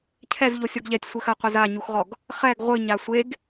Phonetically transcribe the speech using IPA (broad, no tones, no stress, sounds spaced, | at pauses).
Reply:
cʰ ɛ z ʎ o sʲ ɔ ɡ ʎ ɛ tʲ sʷ ɘ x ɐ qʷ ɛ z a ɲ u x ʁ ɔ ɡ | χ ɛ ɡ ʁʷ ɨ ɲ a sʷ e ɡ